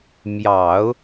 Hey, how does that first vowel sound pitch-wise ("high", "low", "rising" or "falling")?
low